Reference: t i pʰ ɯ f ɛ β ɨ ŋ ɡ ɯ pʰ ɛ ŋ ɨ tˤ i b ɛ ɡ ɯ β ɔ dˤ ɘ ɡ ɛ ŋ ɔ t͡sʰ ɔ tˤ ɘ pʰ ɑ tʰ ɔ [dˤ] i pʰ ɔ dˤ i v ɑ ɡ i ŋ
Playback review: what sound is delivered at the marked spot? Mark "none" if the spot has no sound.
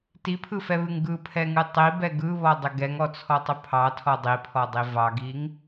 dˤ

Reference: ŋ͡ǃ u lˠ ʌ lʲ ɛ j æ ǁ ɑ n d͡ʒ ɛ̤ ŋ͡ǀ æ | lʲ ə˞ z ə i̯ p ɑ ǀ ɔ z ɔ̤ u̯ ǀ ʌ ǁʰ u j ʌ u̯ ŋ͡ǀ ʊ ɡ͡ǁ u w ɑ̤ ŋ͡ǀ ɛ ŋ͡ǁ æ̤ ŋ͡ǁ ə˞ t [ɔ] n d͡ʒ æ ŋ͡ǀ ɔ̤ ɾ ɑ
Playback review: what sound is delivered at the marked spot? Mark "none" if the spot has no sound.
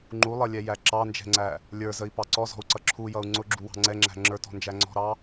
ɔ̤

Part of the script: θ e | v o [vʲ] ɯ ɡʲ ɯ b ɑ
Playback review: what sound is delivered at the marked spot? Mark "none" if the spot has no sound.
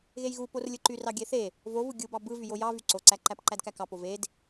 v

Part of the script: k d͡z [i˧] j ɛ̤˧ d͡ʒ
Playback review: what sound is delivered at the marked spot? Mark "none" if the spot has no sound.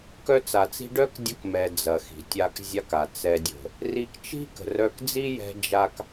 i˦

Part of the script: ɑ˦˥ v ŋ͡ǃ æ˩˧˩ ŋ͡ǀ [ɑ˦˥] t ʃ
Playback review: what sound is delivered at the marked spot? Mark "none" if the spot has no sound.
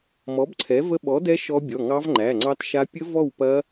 ɑ˦˥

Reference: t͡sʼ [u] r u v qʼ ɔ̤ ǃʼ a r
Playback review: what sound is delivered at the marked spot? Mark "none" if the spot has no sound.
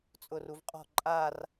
ʊ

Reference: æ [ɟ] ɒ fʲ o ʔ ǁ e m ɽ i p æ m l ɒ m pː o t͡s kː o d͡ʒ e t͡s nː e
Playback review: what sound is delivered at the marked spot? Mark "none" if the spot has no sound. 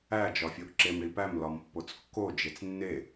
d͡ʒ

